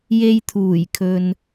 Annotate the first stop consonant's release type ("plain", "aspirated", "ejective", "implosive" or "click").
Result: aspirated